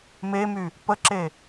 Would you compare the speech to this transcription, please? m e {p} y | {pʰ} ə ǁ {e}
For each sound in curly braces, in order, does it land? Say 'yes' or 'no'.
no, no, yes

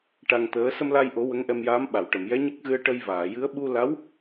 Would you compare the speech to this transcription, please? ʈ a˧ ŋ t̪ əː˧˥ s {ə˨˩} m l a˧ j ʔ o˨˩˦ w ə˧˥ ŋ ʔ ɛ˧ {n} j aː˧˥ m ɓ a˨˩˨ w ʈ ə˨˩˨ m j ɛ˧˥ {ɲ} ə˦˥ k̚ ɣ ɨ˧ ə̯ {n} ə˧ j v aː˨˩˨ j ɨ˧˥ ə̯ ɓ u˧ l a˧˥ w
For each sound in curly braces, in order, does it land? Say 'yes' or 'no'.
no, no, yes, no

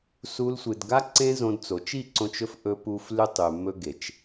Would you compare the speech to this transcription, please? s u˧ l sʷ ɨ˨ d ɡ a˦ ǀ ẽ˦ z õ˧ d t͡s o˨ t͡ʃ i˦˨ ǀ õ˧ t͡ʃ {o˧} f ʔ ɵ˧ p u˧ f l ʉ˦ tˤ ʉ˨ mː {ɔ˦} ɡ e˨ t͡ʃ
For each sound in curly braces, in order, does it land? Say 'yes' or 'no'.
no, no

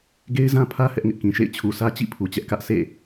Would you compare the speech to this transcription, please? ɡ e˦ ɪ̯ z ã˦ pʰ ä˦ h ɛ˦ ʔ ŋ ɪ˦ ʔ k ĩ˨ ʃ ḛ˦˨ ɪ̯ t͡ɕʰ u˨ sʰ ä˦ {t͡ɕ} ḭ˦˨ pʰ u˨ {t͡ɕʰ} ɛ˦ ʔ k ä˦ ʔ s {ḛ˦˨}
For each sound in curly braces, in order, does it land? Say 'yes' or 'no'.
yes, no, yes

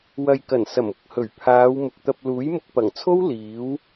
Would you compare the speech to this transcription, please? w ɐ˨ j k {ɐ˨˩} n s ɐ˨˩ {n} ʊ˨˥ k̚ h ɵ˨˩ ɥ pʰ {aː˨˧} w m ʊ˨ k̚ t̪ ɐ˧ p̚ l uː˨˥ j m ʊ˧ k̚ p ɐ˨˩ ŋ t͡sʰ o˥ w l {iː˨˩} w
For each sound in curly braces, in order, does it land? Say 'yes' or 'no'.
yes, no, yes, no

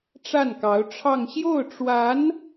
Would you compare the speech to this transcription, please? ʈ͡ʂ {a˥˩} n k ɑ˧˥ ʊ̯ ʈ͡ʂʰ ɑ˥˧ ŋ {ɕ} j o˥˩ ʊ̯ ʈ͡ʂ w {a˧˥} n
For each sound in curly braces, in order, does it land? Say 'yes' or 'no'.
yes, yes, yes

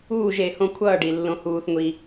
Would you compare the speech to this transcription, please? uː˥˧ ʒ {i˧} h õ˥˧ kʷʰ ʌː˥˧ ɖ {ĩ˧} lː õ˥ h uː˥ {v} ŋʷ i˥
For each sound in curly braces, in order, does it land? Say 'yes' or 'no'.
no, no, no

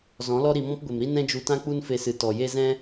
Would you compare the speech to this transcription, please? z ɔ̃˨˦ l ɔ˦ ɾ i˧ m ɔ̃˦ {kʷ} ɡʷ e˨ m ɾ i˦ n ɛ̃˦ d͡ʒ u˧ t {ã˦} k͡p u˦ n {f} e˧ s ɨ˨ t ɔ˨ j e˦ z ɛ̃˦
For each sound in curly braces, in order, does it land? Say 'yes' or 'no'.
no, yes, yes

